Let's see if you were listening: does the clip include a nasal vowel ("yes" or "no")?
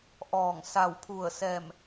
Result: no